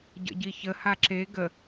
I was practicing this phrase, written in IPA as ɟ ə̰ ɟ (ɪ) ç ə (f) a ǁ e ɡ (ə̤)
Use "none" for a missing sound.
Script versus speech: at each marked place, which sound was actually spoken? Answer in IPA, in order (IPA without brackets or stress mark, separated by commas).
i, h, ə